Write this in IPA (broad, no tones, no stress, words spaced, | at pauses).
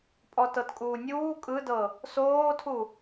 pʼɔtɤtkʼuːnʲuː kʼɯdɤ | soːtʰu